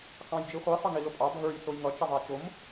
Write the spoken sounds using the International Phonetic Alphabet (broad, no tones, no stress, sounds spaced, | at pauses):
k ɑ̃ j d͡ʒ i χʷ i sˤ ʌ ŋ i l ʊ pʼ ɑ bʱ ə˞ j s ʊ j ŋ ʌ t͡ʃ ʌ ðˤ ɑ t͡ʃ ʊ m